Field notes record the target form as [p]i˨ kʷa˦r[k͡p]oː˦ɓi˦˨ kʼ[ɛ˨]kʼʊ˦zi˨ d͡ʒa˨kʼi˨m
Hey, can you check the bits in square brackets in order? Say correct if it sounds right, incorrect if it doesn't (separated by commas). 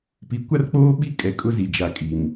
correct, correct, correct